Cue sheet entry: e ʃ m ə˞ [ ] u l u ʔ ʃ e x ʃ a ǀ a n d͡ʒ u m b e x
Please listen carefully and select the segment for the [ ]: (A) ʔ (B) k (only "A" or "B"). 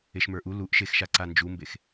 A